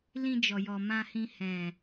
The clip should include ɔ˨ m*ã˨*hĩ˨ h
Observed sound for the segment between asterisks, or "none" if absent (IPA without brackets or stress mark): ã˨